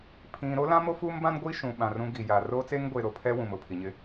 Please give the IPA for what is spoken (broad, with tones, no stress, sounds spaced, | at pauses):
pʰ ĩ˨ ɾ o˦ l ã˦ m o˦ f uː˦ m b ã˦ n ɡʷ i˦ ʃ ũ˨ ɓ ã˨ r ũ˦ ɡ i˨ j a˨ r oː˦ t͡s eː˦ ŋ ɡʷ eː˨ ɾ o˨ pʰ ɛ˦ w ũ˨ m ʊ˨ pʰ i˨ ɲ ɪ˦